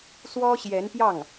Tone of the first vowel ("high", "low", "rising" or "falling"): high